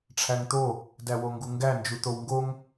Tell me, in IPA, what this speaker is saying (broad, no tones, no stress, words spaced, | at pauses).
ʈ͡ʂʰæŋt̪o | dæwoŋɡuŋɡæ nd͡ʒut̪owŋɡoŋ